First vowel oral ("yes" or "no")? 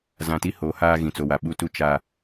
no